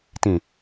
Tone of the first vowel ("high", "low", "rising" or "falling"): low